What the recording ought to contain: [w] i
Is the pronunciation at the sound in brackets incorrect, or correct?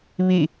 incorrect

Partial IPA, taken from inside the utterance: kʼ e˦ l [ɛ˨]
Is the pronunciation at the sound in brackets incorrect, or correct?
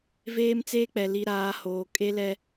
incorrect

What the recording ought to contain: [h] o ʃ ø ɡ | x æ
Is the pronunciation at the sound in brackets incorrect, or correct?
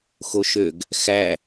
incorrect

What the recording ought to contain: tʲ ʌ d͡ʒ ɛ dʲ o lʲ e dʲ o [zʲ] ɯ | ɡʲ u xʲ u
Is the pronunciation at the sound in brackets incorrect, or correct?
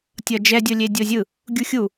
correct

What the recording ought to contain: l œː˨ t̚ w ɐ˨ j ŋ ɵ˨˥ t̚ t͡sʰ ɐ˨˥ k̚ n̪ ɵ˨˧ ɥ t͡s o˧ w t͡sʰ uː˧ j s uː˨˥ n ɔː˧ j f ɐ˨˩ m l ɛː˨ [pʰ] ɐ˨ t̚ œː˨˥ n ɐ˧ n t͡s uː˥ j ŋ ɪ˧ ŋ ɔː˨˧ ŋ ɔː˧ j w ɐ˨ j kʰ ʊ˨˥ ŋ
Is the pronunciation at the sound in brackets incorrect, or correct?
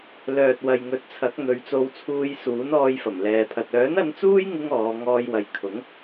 correct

